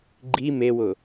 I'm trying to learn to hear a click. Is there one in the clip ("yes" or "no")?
yes